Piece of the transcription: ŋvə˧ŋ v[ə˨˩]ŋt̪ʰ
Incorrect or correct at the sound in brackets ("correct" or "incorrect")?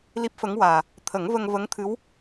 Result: incorrect